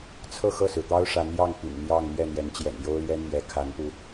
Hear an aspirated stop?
yes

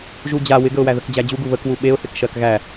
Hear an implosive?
yes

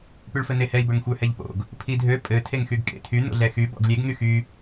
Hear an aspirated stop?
yes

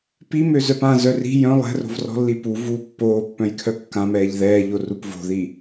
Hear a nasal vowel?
yes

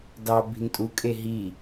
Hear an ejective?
yes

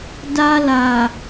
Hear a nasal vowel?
no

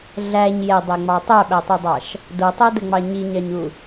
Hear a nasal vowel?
no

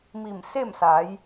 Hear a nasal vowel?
no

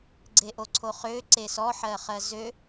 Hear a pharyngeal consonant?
yes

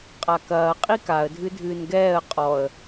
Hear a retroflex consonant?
no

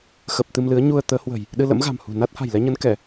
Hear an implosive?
yes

